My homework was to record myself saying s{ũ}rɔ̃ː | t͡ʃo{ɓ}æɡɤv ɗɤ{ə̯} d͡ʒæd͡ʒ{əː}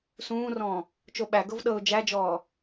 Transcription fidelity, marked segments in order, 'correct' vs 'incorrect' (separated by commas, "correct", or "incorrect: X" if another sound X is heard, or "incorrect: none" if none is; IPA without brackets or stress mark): incorrect: ũː, correct, incorrect: ʊ̯, incorrect: ɔː